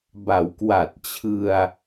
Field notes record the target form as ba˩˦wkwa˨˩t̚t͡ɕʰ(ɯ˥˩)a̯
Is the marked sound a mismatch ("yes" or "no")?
yes